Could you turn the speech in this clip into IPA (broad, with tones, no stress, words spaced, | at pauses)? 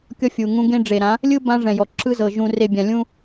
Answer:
kʲɔ˦fʲu˨ŋũ˦ ɡẽ˦ɖ͡ʐe˨ɾã˨˦ | lʲɯ˦ bã˦ʐɛ̃˨jɔ˨ ǁʰɯ˦zɤ˨ ʒũ˨re˨ bʲã˨lʲũ˦